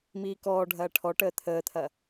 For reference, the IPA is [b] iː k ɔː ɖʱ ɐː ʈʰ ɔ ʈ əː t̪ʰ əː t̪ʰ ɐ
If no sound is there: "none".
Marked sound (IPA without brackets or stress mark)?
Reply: m